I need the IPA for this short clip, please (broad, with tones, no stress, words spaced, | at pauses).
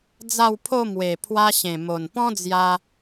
d͡za˥˧wpʰo˥˧ mwe˨˩pʰwa˧ ɕẽ˨˩ mo˨˩npɔ̃˦d͡zja˧